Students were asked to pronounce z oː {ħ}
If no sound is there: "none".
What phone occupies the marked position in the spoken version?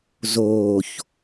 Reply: ç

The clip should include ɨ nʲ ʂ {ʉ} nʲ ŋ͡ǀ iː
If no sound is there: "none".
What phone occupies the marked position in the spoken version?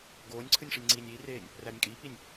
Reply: ɘ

